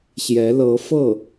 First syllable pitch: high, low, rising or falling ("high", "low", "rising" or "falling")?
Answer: rising